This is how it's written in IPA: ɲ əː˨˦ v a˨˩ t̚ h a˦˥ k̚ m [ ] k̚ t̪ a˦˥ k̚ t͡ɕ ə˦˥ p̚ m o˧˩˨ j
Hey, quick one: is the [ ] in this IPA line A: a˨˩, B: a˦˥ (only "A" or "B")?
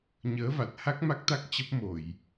B